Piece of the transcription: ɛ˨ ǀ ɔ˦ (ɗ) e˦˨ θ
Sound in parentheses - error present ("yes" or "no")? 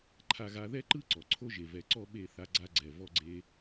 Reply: yes